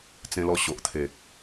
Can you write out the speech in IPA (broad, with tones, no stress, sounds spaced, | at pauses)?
t͡s ẽ˧ l ɔ˧ ɕ o˨ ʔ t̪ʰ e˨ k̚